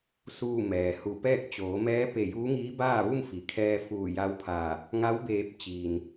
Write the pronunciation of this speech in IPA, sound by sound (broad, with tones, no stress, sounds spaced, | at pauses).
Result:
s uː˥˨ m ɛː˩ h u˧˩ p ɛː˥˨ k̚ t͡ɕ oː˩˧ m ɛː˧˥ p e˧˩ j uː˧˥ ŋ iː˧˥ b aː˥˨ ʋ u˥˨ m f i˩ kʰ ɛː˧ f uː˧˩ j a˧˥ w pʰ aː˧˩ | ŋ a˧˥ w b eː˧˩ p̚ t͡ɕ iː˩ n